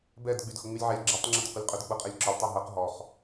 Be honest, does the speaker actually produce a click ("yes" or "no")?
yes